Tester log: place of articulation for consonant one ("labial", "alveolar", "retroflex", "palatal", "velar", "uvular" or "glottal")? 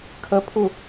velar